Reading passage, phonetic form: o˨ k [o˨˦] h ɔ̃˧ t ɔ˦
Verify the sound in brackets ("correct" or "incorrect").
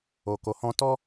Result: incorrect